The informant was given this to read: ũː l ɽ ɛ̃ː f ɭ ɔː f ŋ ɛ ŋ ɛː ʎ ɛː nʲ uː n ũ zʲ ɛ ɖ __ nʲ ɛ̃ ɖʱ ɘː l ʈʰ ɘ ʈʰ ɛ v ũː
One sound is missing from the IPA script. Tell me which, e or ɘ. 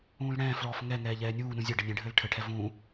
ɘ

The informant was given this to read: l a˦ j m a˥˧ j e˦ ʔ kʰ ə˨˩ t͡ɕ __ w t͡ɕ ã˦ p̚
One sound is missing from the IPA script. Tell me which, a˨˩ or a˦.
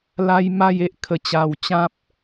a˨˩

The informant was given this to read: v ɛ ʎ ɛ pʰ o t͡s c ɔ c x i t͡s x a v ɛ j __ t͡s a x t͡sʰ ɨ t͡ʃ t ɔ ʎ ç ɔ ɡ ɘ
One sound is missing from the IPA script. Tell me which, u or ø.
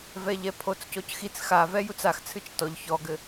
u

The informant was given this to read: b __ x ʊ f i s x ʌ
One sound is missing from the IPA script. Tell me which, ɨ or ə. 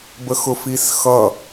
ə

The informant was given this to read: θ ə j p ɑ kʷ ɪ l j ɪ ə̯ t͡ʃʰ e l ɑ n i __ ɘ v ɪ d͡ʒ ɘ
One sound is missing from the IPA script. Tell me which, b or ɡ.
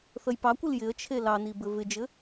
b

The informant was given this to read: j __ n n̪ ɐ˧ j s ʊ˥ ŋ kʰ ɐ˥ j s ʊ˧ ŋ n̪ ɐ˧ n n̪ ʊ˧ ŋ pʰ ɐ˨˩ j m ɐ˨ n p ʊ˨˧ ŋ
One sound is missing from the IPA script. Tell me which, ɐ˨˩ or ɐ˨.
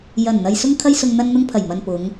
ɐ˨˩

